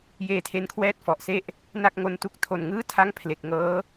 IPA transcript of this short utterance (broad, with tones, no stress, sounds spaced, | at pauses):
j eː˧ tʰ e˧ n kʰ w ɛː˥˩ t̚ f ɔ˨˩ ʔ s e˥˩ ʔ | n a˥˩ k̚ ŋ o˦˥ n t u˦˥ k̚ tʰ o˨˩ n ŋ ɯː˥˩ tʰ a˥˩ ŋ pʰ l e˨˩ k̚ ŋ ɤː˦˥